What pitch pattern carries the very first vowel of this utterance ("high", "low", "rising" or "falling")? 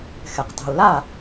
low